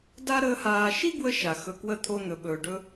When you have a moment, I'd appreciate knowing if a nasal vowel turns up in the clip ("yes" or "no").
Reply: no